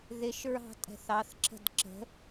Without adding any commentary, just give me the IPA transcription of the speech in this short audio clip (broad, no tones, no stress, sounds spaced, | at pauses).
ð ɪ ʃ ɹ ɑ̤ tʼ ɛ̤ θ ɑ θ ǁ ə̤ d ǁ ə̤